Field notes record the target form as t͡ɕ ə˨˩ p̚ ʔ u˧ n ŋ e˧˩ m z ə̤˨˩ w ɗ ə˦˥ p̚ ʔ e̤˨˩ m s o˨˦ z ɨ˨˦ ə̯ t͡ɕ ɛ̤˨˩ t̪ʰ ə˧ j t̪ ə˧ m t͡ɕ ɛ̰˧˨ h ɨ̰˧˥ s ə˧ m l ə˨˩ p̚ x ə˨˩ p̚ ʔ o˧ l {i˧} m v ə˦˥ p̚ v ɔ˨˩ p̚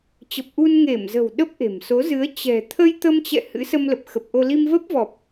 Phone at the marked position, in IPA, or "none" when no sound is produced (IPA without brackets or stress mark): i˧